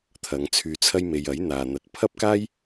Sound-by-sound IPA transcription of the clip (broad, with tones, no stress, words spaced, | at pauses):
t̪ʰɐ˨˧ŋ t͡sʰyː˧t͡sʰɐ˥jme˧j ɐ˨˥jn̪aː˨ n̪ɐ˧t̚ pʰɐ˥p̚kaː˥j